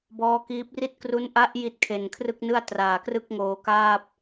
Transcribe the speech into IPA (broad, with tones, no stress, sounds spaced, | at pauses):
b ɔː˦˥ k iː˦˥ p̚ r i˥˩ t̚ k r u˦˥ n ʔ a˦˥ ʔ j i˦˥ t̚ kʰ e˨˩ n kʰ r ɯ˥˩ k̚ n ɯ˥˩ a̯ t r aː˨˩ k r ɯ˥˩ k̚ ŋ oː˨˩ k aː˥˩ p̚